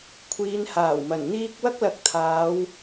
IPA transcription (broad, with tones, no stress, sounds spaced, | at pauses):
kʷʰ iː˨˧ n h aː˨˩ w m ɐ˨˩ n n̪ iː˥ k̚ w ɐ˥ k̚ l ɐ˨˥ k̚ t̪ʰ aː˨˧ w